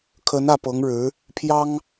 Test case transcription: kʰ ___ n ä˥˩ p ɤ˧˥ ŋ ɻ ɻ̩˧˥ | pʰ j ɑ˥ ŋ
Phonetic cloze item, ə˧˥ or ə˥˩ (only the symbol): ə˧˥